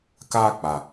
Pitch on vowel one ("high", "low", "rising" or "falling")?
high